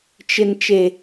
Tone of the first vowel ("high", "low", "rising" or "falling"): low